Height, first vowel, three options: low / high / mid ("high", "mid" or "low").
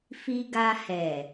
high